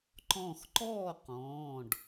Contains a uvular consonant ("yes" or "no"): yes